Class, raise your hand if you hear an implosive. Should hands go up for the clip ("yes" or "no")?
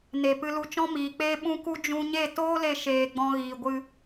yes